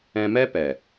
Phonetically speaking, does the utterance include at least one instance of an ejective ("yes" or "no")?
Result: no